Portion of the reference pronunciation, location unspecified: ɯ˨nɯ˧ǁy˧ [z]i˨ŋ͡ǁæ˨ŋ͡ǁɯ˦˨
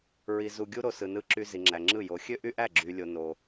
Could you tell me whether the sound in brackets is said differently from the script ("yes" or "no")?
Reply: no